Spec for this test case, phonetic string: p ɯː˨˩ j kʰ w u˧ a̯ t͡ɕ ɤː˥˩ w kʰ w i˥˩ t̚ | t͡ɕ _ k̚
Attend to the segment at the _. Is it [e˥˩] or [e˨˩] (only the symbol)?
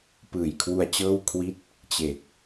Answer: e˨˩